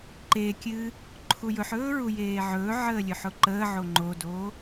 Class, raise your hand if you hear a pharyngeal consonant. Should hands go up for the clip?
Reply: yes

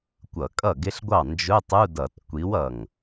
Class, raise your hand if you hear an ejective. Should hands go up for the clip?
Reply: yes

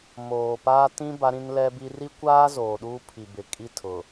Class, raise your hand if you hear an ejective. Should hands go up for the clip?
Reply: yes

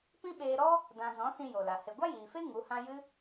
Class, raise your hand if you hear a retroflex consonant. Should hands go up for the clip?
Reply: no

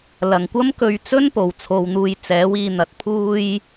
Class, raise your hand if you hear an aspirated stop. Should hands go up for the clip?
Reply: yes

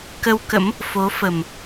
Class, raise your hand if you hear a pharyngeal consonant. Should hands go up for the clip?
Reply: no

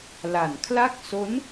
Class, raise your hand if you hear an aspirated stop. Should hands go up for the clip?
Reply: yes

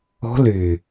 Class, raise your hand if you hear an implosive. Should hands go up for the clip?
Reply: no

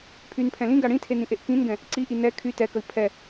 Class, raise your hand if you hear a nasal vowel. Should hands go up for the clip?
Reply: yes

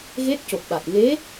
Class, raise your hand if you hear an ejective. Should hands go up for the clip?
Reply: no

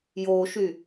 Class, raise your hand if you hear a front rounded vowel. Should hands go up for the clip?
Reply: yes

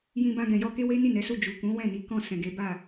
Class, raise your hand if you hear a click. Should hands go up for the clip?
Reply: no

